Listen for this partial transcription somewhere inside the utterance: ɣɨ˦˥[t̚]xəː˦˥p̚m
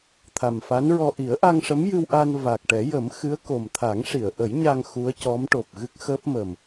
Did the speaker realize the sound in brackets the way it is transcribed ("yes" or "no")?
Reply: no